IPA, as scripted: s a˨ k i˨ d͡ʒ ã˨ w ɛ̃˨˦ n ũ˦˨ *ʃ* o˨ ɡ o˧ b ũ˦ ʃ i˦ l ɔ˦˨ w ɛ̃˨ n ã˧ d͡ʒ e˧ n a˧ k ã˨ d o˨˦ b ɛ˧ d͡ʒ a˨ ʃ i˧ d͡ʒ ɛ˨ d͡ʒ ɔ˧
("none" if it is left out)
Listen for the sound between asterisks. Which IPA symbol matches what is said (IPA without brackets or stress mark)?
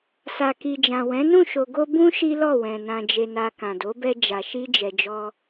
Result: ʃ